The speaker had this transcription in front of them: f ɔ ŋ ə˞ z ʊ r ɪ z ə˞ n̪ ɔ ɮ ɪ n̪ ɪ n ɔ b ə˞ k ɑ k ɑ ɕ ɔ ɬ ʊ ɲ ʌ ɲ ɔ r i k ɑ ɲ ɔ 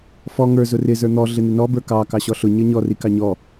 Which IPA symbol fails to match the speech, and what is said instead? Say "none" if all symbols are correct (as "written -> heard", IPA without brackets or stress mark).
none